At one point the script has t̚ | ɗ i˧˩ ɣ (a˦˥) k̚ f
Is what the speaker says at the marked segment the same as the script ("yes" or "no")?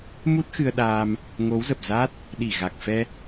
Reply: no